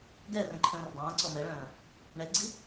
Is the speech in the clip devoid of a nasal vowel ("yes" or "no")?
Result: no